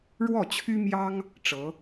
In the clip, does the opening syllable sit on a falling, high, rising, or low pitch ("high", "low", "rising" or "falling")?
falling